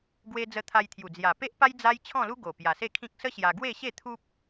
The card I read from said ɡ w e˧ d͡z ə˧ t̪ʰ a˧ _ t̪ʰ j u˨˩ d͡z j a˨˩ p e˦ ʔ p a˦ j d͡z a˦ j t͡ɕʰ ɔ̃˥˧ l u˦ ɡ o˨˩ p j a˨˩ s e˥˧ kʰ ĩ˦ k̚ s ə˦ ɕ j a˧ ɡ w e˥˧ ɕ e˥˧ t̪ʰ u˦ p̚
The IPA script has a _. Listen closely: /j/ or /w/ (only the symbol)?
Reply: j